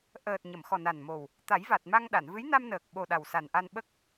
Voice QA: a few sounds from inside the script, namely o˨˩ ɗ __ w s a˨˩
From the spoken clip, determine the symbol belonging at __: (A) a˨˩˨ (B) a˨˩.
B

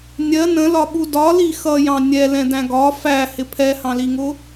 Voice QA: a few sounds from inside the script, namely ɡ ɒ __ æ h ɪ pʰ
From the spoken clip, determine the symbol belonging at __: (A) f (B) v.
A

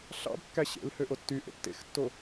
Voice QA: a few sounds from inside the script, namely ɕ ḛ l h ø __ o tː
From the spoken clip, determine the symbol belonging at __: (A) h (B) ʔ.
B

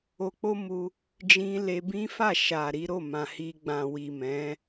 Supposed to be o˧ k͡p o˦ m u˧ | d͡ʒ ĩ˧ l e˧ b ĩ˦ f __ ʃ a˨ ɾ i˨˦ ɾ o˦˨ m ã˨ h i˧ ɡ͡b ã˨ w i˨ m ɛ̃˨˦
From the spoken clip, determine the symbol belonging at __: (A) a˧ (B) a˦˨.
B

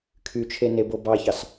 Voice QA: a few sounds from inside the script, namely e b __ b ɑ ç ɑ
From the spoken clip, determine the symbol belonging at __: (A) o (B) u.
A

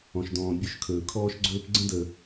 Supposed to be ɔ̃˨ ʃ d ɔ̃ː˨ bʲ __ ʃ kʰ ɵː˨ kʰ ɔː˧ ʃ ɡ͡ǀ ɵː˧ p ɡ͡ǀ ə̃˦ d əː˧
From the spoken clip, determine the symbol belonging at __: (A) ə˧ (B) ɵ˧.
B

